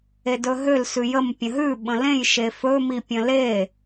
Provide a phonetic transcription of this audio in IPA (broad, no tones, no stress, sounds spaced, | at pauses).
e d ɵ ɦ ø l s ʉ j ə m pʲ ə̃ ɦ ʉ ɓ ə̃ l ẽ j ʃ e f ɵ m i pʲ ə̃ l e